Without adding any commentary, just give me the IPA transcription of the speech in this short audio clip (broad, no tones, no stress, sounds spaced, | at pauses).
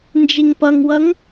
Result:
n d͡ʒ i ŋ p ʌ ŋ w ʌ ŋ